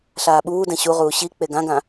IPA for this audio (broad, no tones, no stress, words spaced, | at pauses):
ɬaːɓuːdɛ̃ ɕuʁuː ɕi k͡peɡãɡã